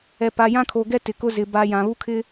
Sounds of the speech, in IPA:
ɛ˨ p a˨ j ã˦ kʰ o˨ ɡ ɛ˦ t ɪ˨ k ʊ˦ z ɪ˨ b a˨ j ã˨ β u˦ kʰ ɪ˦

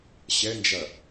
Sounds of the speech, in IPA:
ɕ ɛ n d͡ʒ ɐ

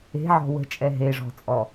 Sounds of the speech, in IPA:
e̤ ʕ ɔ̤ w ə̤ t͡ʃʼ ɛ ɦ e ʐ ɔ̤ t͡sʼ ɔ

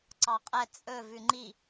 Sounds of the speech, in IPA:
ǀ ɑ qʼ ɛ t͡sʼ ɵ v ʉ ŋ͡ǃ i

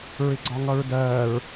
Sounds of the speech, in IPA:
ɹ ɪ ɡ͡ǀ ɒ ŋ ʌ ɹ d ɜː ɹ

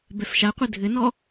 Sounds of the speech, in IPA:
b ɛ f ʃ a qʷ ɘ dʱ ɘ n ɔ

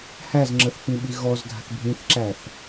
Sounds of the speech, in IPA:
h æ z ŋ͡ǁ ə θ p ĩ ɓ i ɣ ɔ z dʱ a̤ θ bʱ ĩ θ ǁ æ θ

